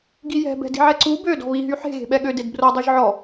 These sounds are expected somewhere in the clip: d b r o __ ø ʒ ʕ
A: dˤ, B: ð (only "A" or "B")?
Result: A